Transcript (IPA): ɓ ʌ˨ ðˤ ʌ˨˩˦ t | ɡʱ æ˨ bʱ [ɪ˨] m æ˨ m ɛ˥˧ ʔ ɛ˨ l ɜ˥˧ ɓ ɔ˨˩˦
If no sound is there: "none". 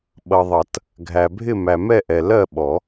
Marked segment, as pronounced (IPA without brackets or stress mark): ɪ˥˧